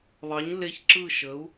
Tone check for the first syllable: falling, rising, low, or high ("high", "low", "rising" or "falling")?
rising